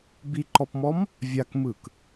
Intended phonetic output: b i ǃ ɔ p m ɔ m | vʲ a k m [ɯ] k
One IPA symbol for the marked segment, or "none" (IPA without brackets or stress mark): ɯ